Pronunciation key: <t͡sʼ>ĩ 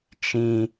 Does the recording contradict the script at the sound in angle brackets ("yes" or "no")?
yes